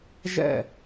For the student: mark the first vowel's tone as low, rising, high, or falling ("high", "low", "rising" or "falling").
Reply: falling